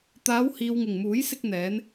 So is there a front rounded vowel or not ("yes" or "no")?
no